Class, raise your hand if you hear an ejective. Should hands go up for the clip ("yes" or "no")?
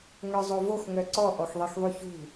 no